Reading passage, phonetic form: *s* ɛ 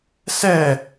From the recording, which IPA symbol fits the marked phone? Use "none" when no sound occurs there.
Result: s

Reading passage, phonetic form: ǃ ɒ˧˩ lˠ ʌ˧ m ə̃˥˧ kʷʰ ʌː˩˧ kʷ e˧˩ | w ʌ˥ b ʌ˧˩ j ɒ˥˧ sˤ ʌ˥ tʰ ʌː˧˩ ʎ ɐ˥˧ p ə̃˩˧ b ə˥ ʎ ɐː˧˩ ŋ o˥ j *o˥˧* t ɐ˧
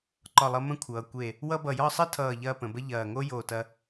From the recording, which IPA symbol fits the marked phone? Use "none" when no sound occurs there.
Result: o˧˩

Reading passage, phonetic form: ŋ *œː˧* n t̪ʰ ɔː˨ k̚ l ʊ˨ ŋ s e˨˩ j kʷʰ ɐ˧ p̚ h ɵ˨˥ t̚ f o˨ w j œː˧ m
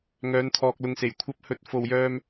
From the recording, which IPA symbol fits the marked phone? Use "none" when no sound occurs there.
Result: œː˨˧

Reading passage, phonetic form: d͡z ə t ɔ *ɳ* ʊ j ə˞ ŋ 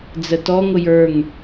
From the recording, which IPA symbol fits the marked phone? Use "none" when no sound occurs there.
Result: ŋ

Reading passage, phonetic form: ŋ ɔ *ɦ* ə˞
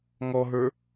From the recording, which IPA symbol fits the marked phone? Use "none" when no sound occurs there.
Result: ɦ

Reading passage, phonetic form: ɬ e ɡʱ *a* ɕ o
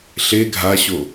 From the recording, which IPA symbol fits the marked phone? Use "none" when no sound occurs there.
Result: a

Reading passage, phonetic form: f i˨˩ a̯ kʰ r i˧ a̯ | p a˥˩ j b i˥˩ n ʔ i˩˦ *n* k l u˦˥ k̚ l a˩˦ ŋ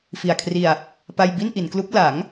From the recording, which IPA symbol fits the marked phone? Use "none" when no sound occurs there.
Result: n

